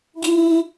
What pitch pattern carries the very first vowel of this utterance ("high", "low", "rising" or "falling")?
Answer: high